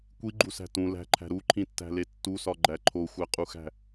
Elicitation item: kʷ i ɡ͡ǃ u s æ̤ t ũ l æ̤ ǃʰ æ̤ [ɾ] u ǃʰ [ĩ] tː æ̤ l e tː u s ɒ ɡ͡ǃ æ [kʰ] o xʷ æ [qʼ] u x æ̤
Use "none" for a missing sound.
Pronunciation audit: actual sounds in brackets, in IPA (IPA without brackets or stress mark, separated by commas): ɾ, ĩ, ǃʰ, qʼ